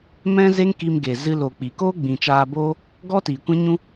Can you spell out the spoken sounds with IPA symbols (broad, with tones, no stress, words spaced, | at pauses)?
mɛ̃˦ze˦ŋki˧mɡe˨ zɨ˧lo˨k͡pi˨koː˦ ɡ͡bĩ˨t͡ʃaː˧boː˦ | ɡɔ˦tiː˨kʷɛ̃˦ ɲũ˦